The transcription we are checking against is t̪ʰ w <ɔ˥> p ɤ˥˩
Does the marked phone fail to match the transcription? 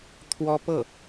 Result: no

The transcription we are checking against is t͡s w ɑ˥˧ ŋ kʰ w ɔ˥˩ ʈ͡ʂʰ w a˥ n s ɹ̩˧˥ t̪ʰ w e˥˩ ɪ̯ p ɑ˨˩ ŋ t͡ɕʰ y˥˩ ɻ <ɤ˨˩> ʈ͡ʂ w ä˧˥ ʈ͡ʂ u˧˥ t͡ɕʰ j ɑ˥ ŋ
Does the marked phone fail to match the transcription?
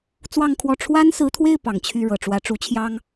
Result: no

